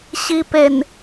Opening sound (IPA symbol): ɕ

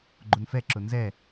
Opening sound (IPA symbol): ɡ͡ǃ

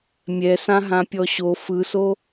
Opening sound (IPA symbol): mʲ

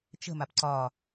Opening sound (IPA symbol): t͡ʃ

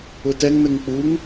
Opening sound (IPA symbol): ʊ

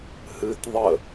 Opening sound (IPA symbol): h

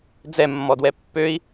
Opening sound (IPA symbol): d͡z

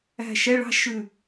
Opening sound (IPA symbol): æ̤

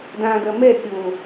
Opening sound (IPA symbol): d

